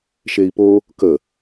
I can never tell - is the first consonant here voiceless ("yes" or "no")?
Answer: yes